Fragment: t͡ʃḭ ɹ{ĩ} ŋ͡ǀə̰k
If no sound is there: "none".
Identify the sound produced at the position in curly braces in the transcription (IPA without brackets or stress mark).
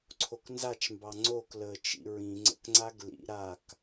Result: ĩ